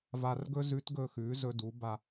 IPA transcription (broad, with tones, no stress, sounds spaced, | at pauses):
v a˧ r ɡ ɵ˥ z ʉ˧˥ t ɡ ɵ˧ x ʉ˩˧ z ɵ˧ d u˩˧ b a˧